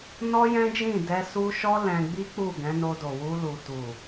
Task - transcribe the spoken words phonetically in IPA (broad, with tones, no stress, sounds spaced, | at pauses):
n ɔ˦ j ɛ̃˦ d͡ʒ ĩ˦˨ d ɛ˧ s u˦ ʃ ɔ˦ l ɛ̃˧ ɡ͡b i˦ k͡p u˦˨ ɡ ɛ̃˨˦ n o˧ d o˨ w u˧ l u˨ t u˨